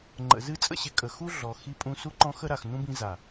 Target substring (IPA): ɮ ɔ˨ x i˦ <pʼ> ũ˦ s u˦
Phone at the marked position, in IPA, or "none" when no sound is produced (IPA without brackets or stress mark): pʼ